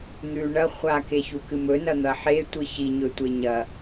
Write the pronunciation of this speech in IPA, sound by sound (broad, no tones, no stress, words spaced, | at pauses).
n̪ʉ ɳɐ χʷakeçukɨ mɵnɐn̪ɐ ħetʷɨ çiɲɵtʷe ɲɐ